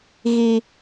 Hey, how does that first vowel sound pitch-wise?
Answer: high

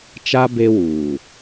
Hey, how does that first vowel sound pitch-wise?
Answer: high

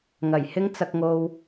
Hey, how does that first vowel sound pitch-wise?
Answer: low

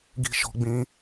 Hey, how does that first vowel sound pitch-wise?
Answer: high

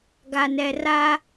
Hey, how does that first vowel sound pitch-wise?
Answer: low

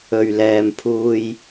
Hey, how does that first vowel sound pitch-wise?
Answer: low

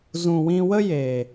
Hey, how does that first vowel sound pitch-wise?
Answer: low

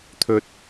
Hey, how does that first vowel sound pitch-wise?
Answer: high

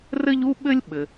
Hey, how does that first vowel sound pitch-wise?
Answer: high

